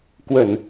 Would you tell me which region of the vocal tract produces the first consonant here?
velum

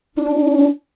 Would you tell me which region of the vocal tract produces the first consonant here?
tongue tip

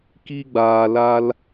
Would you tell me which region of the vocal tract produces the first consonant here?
velum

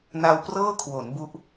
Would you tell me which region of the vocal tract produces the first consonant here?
tongue tip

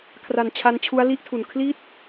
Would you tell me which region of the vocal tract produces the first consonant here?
velum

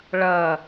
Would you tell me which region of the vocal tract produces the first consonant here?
retroflex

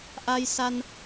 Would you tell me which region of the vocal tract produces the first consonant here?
throat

